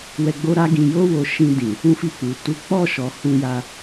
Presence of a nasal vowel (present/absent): present